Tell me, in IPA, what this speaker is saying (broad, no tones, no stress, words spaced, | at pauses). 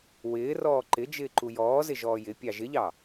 wɪːrɔː ǃɪ d͡ʒɪːǃujɔːzɪ ʒɔːjɪpʲɑ ʒɪʎɑ